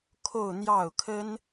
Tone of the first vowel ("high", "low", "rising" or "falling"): falling